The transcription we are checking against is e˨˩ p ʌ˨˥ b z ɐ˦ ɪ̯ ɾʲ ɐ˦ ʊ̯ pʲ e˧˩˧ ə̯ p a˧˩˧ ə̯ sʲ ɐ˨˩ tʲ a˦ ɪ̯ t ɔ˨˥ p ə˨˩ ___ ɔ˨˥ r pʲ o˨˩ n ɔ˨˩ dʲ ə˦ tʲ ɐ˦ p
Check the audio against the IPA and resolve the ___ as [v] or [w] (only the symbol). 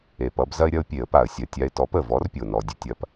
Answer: v